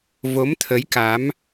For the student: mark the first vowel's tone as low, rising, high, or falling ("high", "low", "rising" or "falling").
rising